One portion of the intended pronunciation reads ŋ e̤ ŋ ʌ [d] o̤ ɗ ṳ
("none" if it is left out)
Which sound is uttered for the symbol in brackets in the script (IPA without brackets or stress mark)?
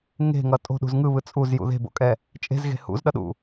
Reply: tʼ